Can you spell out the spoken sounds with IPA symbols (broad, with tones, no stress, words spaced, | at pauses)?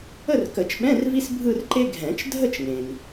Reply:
ə˥˧rkə˨˩˦t͡ʃɓɛ̃˧˥˧r vi˥sbʱɯ˥˧rǃe˥ ɡʱɛ̃˨˩˦t͡ʃ dʱə˥˧t͡ʃŋẽ˩ŋ